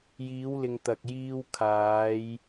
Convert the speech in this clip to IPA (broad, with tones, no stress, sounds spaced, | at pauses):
j iː˨˧ w l ɪ˨ ŋ t̪ ɐ˨ k̚ j iː˧ w kʰ aː˨˧ j